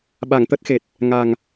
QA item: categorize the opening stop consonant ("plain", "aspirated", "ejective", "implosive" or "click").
implosive